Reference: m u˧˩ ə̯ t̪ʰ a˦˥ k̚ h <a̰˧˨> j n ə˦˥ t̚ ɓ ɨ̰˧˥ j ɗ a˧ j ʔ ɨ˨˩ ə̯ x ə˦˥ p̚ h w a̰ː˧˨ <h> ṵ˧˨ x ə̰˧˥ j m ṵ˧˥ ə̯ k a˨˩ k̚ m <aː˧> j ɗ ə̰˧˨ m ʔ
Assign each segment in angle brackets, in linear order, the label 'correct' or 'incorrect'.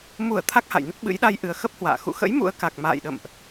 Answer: correct, incorrect: x, incorrect: a̰ː˧˨

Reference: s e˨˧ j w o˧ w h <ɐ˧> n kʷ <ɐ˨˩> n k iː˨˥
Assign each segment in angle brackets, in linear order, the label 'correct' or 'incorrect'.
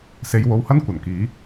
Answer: incorrect: ɐ˥, correct

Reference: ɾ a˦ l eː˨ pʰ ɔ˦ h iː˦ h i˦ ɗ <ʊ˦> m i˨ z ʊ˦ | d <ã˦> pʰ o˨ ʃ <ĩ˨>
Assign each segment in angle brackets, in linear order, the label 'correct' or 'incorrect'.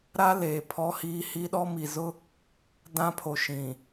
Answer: incorrect: ɔ˦, correct, correct

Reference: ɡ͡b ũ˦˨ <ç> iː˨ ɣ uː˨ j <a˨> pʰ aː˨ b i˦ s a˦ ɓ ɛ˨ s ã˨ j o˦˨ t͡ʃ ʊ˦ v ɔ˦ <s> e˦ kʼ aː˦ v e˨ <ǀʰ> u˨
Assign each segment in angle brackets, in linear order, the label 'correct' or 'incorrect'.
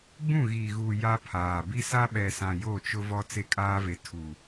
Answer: incorrect: ɣ, incorrect: a˦, incorrect: t͡s, incorrect: tʰ

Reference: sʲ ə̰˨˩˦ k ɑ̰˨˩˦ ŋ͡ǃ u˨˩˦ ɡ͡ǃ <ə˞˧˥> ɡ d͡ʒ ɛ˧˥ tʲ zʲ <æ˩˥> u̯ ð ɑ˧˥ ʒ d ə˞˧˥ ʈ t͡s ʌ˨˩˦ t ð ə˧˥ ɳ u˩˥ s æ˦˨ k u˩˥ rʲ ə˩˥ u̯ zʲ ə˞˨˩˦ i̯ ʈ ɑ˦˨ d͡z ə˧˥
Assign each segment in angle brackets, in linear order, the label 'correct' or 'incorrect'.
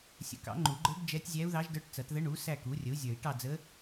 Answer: correct, incorrect: æ˧˥

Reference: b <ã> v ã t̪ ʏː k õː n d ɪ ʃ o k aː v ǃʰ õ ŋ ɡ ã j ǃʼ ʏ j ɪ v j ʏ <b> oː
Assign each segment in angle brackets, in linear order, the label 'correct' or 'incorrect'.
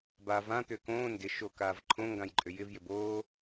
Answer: incorrect: a, correct

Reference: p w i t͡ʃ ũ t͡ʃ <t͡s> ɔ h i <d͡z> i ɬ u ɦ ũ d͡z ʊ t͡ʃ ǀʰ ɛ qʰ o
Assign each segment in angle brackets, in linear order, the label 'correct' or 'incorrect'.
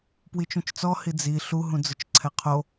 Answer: correct, correct

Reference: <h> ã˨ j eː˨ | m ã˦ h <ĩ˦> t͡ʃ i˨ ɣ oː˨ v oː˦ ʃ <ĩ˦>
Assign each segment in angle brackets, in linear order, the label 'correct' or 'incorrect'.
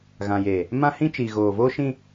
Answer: incorrect: ɣ, correct, correct

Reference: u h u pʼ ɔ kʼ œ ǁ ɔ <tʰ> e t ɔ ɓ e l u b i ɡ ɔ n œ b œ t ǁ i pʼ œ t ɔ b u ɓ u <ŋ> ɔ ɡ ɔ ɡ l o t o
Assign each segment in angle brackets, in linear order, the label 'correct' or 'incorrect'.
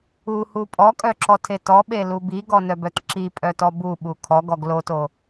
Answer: correct, incorrect: kʰ

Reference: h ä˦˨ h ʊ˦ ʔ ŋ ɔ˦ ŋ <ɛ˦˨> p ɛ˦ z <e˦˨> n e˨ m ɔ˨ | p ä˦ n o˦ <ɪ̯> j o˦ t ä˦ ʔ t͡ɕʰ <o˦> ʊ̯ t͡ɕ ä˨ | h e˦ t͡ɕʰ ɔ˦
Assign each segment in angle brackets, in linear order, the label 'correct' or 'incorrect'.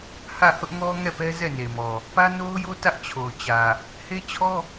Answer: correct, incorrect: ɛ˦˨, incorrect: ʊ̯, incorrect: o˨

